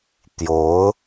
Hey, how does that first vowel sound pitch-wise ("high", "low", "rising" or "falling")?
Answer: rising